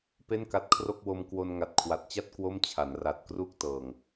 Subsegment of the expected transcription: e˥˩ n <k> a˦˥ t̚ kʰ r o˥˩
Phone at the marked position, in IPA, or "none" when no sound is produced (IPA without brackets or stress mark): k